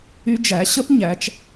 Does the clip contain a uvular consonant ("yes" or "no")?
no